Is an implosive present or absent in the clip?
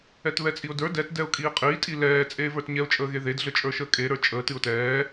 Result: absent